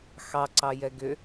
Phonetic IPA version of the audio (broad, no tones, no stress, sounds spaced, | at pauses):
x ɑ ǀ ɑ j ɛ ɡ ʏ